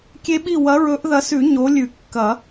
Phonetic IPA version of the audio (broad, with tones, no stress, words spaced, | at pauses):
kʲe˦˥ɓi˥˨ wɐ˨˦ɹɵ˨˦ʔðɐ˨˦sʉ˨˩˦ ɲo˨˦lʲʉ˨˩˦ kːɐ˨˩˦